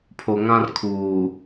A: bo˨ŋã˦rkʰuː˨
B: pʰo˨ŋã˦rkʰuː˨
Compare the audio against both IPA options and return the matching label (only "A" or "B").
B